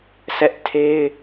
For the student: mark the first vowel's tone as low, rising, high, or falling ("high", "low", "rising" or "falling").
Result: high